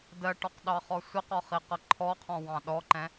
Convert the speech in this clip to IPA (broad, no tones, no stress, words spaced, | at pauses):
dɜʈɔqɗɑχɔ sʷɪqɒχiqʌ ǃʰɔqʰɔ̃wɑ̃ ɗɔǃɛ̃